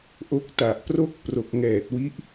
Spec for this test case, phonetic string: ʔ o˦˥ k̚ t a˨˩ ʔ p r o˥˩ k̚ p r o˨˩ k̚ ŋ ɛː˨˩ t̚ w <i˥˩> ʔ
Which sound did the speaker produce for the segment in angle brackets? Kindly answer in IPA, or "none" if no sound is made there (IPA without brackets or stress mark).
i˦˥